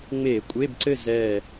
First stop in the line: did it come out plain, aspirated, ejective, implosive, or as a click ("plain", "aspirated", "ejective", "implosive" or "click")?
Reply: ejective